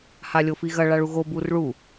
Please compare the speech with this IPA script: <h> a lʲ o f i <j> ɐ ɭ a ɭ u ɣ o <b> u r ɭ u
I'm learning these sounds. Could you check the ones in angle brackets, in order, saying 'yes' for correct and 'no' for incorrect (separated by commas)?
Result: yes, no, yes